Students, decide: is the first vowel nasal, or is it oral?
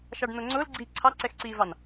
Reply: oral